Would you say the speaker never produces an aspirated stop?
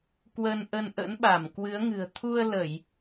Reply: no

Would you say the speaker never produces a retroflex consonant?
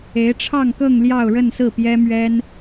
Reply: no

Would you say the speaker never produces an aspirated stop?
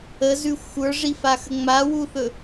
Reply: yes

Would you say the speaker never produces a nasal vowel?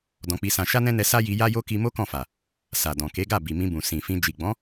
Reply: no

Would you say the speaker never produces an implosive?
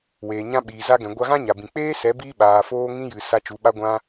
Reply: no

